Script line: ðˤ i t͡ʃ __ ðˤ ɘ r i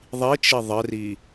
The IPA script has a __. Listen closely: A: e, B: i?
B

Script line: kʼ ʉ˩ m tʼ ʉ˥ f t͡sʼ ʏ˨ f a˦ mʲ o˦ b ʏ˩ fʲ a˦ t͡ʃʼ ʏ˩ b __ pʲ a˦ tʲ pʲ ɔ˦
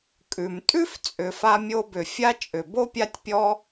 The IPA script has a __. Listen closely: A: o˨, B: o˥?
B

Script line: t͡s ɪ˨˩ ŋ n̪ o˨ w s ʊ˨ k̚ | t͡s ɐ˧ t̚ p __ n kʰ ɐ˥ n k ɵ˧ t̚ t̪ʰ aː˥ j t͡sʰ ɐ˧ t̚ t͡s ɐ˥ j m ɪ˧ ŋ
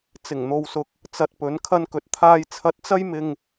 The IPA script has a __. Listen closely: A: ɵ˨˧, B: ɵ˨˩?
A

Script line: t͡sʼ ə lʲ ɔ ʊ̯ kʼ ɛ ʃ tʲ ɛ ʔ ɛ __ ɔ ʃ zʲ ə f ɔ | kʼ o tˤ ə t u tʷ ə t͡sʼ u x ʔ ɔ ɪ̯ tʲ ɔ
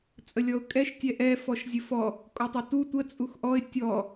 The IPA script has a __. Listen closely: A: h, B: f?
B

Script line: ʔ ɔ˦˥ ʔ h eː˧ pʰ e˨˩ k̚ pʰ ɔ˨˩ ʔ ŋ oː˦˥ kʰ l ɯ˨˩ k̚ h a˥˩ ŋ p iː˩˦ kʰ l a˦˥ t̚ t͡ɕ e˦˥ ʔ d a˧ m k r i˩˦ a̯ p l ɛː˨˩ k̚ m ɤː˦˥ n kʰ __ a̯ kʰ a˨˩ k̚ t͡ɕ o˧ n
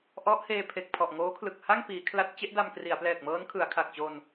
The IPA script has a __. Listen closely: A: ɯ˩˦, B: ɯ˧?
A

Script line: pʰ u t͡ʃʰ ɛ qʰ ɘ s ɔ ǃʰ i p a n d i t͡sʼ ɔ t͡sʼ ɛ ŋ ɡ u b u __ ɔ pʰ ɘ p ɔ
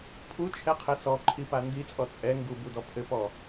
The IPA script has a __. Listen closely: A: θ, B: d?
B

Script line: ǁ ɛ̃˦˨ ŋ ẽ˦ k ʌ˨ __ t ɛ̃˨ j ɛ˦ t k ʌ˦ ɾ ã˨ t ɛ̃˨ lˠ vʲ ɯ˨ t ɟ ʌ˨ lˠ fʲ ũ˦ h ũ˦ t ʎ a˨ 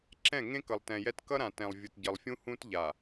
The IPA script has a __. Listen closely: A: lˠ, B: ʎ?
A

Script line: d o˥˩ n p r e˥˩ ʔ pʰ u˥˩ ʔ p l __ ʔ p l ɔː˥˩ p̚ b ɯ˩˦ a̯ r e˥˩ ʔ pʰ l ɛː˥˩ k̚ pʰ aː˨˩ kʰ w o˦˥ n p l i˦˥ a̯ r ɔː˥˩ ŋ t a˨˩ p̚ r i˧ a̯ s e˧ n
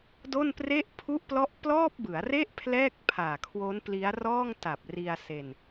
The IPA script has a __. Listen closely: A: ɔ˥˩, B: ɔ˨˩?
A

